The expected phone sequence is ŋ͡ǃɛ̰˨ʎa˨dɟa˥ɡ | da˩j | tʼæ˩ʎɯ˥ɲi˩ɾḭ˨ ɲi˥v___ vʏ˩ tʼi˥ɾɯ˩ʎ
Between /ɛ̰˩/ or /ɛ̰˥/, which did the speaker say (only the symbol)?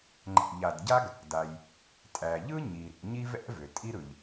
ɛ̰˥